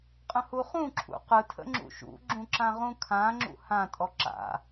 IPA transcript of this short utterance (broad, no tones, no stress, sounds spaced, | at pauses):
qʼ ə̃ h u χ ũ ǁʰ ṵ q ɯ tʰ ə̰ ŋ͡ǁ ṵ ʃ ṵ ɡ͡ǁ ũ ǁ ã ʁ ũ kʰ ã ŋ͡ǁ ṵ h ã tʼ ɔ ǁ a̰